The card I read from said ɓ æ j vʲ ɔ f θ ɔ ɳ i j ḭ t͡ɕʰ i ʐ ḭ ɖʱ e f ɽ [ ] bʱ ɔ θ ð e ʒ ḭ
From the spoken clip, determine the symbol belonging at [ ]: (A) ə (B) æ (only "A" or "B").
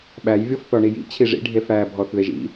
B